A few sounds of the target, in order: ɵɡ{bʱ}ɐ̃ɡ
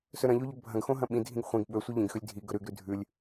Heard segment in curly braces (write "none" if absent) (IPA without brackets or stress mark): bʱ